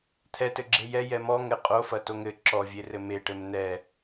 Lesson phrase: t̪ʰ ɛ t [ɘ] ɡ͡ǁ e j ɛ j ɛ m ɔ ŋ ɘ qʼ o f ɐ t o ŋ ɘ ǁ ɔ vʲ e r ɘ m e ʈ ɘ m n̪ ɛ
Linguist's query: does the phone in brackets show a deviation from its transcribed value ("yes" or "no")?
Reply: no